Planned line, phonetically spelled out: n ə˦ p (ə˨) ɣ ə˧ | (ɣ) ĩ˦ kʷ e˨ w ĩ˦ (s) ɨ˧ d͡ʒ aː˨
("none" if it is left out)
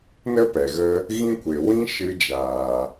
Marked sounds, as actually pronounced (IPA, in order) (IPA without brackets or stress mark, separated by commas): ɛ˨, ɣ, ʃ